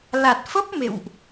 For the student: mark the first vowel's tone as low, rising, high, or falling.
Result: low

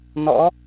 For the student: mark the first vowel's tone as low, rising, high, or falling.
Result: rising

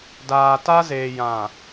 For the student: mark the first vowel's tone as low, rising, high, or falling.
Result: low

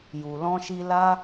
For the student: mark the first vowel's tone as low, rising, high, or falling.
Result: low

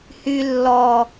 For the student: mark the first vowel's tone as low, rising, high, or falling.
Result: high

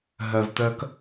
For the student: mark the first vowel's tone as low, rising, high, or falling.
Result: low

